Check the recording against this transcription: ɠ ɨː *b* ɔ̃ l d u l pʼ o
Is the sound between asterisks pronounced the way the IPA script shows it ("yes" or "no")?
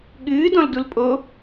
no